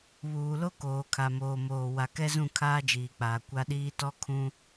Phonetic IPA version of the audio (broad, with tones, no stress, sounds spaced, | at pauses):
β uː˨ l o˦ k oː˨ kʰ a˨ m oː˨ m oː˨ w a˨ k ɛ˦ z ũ˦˨ kʰ aː˦ d͡ʒ iː˨ k͡p aː˨ kʷ a˦ ɗ iː˦ t ɔ˦ kʰ ũ˦